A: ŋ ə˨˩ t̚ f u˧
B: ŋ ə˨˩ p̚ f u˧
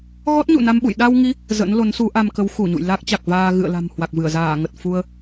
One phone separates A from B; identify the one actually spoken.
A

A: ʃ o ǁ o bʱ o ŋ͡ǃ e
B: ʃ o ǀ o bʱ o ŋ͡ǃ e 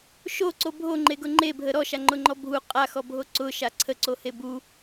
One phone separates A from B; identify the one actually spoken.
B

